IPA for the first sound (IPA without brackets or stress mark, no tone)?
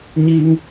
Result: ɲ